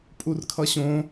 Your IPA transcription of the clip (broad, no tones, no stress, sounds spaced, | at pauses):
pʼ u r kʰ ʌ ɕ õ